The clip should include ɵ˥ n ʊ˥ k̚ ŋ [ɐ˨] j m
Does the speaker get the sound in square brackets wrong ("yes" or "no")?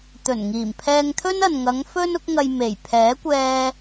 yes